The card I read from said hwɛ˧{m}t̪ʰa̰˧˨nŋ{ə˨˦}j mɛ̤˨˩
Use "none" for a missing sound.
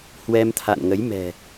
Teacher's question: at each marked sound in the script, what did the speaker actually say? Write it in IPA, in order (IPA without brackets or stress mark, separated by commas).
m, ə˨˦